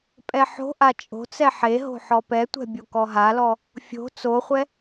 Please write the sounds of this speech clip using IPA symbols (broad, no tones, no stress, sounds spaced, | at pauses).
pʼ ɛ ħ o̤ ʔ a t͡ʃʼ o̤ t͡s ɛ ħ e ɦ o̤ ħ ɔ p ɛ tʷ ɛ̤ bʲ o k ɔ ɦ a l ɔ | fʲ o̤ t͡s o χʷ ɛ